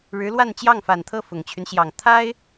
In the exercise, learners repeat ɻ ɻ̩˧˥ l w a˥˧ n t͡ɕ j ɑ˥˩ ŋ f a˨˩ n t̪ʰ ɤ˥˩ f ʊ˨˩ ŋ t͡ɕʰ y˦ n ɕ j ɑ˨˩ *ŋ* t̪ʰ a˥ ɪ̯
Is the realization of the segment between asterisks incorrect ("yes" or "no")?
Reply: no